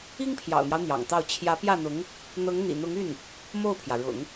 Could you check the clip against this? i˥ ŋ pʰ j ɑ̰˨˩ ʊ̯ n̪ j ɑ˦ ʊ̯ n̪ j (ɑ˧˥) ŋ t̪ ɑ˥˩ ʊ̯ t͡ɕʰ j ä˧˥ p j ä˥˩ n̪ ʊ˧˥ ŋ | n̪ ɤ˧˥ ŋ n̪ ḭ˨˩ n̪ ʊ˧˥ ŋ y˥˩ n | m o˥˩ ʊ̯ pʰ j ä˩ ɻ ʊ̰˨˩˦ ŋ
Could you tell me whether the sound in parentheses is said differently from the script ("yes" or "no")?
yes